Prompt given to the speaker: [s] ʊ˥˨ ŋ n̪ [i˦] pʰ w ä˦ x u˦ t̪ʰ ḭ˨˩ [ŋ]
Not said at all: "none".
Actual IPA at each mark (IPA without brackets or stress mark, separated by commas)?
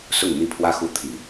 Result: s, i˥˨, none